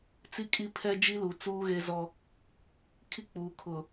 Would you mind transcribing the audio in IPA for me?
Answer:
t͡si˦kʼi˦pʰɛ˦ d͡ʒi˦lu˨ t͡suː˦ɣe˦zɔ˦ | kʰi˦k͡puː˨ kʰʊ˨

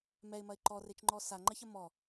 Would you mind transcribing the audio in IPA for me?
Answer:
mɛɪ̯mɐɪ̯ ǃɔret͡ʃŋ͡ǃɔ saŋ͡ǃɐçɐ mɔ

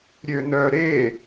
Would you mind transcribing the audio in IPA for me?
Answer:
ɾʲønœ ɾe

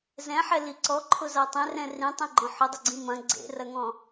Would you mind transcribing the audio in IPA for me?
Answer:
zɛ̃ħɛli ǀɔǃʰʊza tˤẽrɛ̃ rĩtˤĩɡ͡ǃɔ̃ ħʊdˤʏɡ͡ǀĩ mɐ̃ ɡ͡ǀḛrɐŋɔ̃

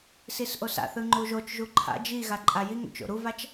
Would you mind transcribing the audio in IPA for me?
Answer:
sisʔosa̰θɯ ŋ͡ǃuʒot͡ʃʒu ǃʰa̰ d͡ʒi ɣaǃʼajiŋo̰t͡ʃ o̰ɾuvat͡ʃ

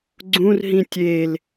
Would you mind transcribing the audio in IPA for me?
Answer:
ɡ͡ǀũrɦĩ tʲel

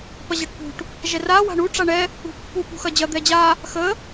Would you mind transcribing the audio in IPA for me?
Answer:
pɐʑɐʈpṳʈ | ʒɛra wa̤ɳu ʈ͡ʂaɳɛ | ṳpːu pṳxɐd͡ʑɐ d̪ɛd͡ʑa | xə

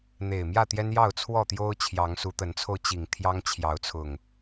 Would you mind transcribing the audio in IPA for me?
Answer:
n̪e˨˩ɪ̯mjä˥˨ t̪jɛ˦njɑ˥˨ʊ̯t͡sʰwɔ˥˨t̪jo˦ʊ̯ t͡ɕʰjɑ˨˦ŋsu˨˦t̪ə˨˦nt͡sʰo˧ʊ̯ t͡ɕi˨˩ŋ t̪ʰjɑ˦ŋ t͡ɕʰjɑ˨˦ʊ̯t͡sʰʊ˨˩ŋ

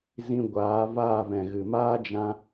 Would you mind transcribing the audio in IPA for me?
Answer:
zĩ˧ɡʷaː˨˦ vaː˦˨vɛ̃˨ɣɨ˨ maː˦d͡ʒã˧

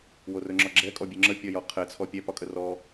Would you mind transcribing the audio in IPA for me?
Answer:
worɵŋ͡ǁɒɡ͡ǁɛ kʼɔbʲøŋ͡ǁə pʲɒjɒqʰɛ t͡sʰɔpʲɛ pɒkʼərɔ

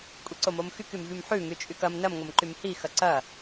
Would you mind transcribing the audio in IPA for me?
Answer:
kʷʼiǀomomxyk ymvymħʉ ŋyt͡ʃʼykɐm nɐm ŋomǃymhi xɐǀɐ

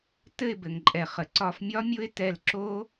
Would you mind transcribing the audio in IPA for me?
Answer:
tɘ˥˧ɪ̯bɘ˩ŋǃʼɛ˩ χə˩ǀɒ˧˩fmʲɒ˦˥mʲʊ˦˥ɪ̯ tɛ˧˩lǁo˦˥

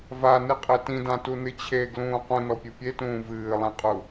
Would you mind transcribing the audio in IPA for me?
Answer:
vanɨqʼe tĩdãtunɨ t͡ɕʰeɡlũː qũnɔpʲɨ pʲetũː vɨːlˠẽqʼu

